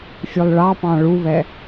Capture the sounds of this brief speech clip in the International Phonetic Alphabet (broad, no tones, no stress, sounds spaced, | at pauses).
fʲ ʉ lˠ ɭ ɑ p ɑ̃ ɭ u β ɛ